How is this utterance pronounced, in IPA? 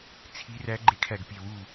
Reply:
t͡sʰi˧˥ræ˧˥ ɡ͡ǃe˧˥kʰæ˧˩ɡpʲe˧˩ wu˧˩

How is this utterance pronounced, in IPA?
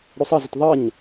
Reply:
ɽosˤʌzət ðˤʌɲ

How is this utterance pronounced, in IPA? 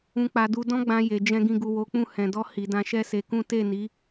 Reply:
ũ˨k͡pa˨ du˧ dɔ̃˧ɡ͡bã˨ je˨d͡ʒɛ̃˧ ɡĩ˨ɡu˨ wo˨˦k͡pũ˦˨ hɛ̃˨dɔ˧ hi˨dã˧ ʃɛ˦se˧kũ˦ te˦˨ni˨˦

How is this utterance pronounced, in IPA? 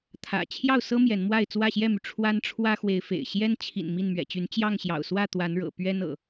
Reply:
t̪ʰä̰˨˩ t͡ɕʰjɑ˥˨ʊ̯sɤ˦ mjɛ˨˦nmwa˥˨ɪ̯ t͡swä˥˨ɕjɛ˥˨my˩ ʈ͡ʂʰwa˦nʈ͡ʂʰwä˦xwe˨˦ɪ̯fḛ˨˩ɪ̯ ɕjɛ˦n t͡ɕʰḭ˨˩n mi˥˨nmɥɛ̰˨˩t͡ɕy˨˦n t͡ɕjɑ˥˨ŋɕjɑ̰˨˩ʊ̯swä˥˨ t̪wa˨˦nɻɤ̰˨˩ pɥɛ˦nɤ̰˨˩

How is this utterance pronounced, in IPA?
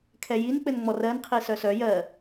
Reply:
kʰɛjink͡pɘnŋ͡mɔ rɜnqʰi sœsœ jɜ

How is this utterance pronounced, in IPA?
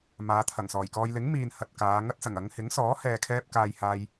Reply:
maː˨˧t̪ʰɐ˨˩ŋsɔː˨˩jkɔː˧j lɪ˨˥ŋmiː˨n hɐ˨t̚kaː˨˧ ŋɐ˥t̚sɐ˨˩ŋ ɐ˨˧ŋhɪ˨˥ŋsɔː˨˥ hɛː˨kʰɛː˧p̚ kaː˧jhaː˧j

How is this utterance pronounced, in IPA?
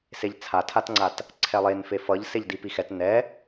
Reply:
seʎt͡sʰatʰatŋ͡ǀat | ǀʰɛlˠenfe fʌʎ seʎdipixɛt nɛ

